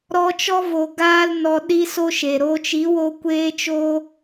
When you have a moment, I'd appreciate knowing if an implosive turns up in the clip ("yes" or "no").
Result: yes